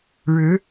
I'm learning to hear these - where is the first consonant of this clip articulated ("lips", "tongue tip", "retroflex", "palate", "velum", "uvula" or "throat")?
retroflex